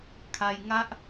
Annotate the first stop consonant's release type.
aspirated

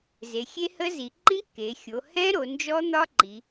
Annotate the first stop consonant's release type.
click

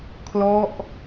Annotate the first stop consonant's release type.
aspirated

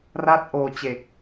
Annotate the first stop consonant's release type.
plain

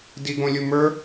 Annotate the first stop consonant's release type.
plain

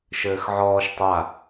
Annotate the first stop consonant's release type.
plain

